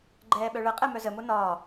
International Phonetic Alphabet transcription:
ɡ͡ǃ ɛː ɓ œ ɭ ə qʼ ɛ m œ z ə m o n ɒː

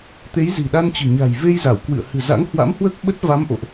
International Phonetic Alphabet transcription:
t̪ e˨˦ j z i̤˨˩ ɗ a˧ n t͡ɕ ɨ̤˨˩ ɲ a̤˨˩ j v e˧ j z a˧˩ w k w ɨ̰˧˨ ə̯ h ɨ̤˨˩ z a̰˧˥ ŋ h w a̰˧˥ m h w əː˦˥ k̚ ɓ ə˦˥ t̚ v a˨˦ m ʔ o̰˧˨ ʔ

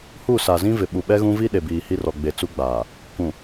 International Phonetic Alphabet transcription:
h u˦˨ s a˨ z ĩ˦ v ɪ˨ ɓ u˨ ɓ ɛ˦ ɣ ũ˦ v i˦ ɗ e˨ b iː˨ h i˦ r ɔ˨ ɡ͡b e˨ t͡s u˦ ɡ͡b aː˨ | k ũ˨

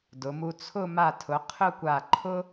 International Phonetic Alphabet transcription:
d ʊ˩˧ m u˧ t͡sʰ ʊ˥˧ m a˧˩ tʰ ʊ˩˧ qʰ ʊ˥˧ kʷ a˧˩ ǃʰ ʊ˥

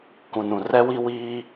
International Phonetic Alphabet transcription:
k ũ˨ n ũ˨ r ɛ˦ w i˦ w iː˦

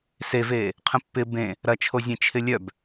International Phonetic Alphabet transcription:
s e v eː | qʰ ə̃ pː ɪ b ẽ | ɾ ɐ t͡ʃʰ o zʲ ẽ t͡ʃʰ ɪ lʲ œ b

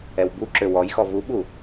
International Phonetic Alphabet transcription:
ɛ w b u ǁ ø w ɔ j x ɔ v u ɓ u

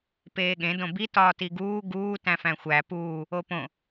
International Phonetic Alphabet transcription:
p eː ɠ ẽ d õ b i t ɒː t i ɡ uː ɡ uː t æ̃ f æ̃ xʷ æ p uː | o p õ

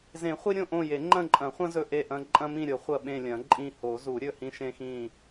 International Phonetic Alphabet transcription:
z ẽ˨˩˦ χʷ i˦ ɾʲ õ˦˨ ʔ õ˦˨ j e˨˩˦ ŋ͡ǃ ɐ̃˦˨ ǃʼ ɐ̃˨˩˦ χʷ ɐ̃˦ z ɵ˦˨ ʔ e˦˨ ʔ ɐ̃˦ ǃʼ ɐ̃˦ m ĩ˦˨ ɾʲ o˨˩˦ χʷ ɐ˦˨ ɓ ẽ˦˨ lʲ ɐ̃˨˩˦ ǃʼ ĩ˦˨ h o˨˩˦ z u˨˩˦ ɾʲ ɵ˦˨ h ĩ˦ ʃ ẽ˦ x ĩ˦˨

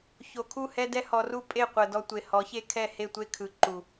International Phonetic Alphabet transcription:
ç o˨ kʰ u˦˨ h ɛ˦ d ɛ˦ h ɔ˧ r u˦ pʼ e˦˨ qʷ ɤ˨ d ɔ˧ tʷ e˨ h ɔ˨˦ ç e˦ kʰ ɛ˦˨ h e˦˨ tʷ e˦ kʰ ɯ˨ ǃ u˨

